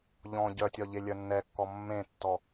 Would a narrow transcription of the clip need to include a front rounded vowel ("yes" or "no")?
yes